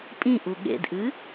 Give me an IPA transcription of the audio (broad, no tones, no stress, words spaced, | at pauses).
pʼĩʔu ɠḛdʔɨ